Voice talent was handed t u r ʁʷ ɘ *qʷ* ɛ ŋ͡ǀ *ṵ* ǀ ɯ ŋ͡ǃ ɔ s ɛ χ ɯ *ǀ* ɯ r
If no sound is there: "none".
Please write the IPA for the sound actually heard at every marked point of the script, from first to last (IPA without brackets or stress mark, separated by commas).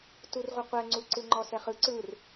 qʷ, u, ǀ